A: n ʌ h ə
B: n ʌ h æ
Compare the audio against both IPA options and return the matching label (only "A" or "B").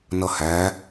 B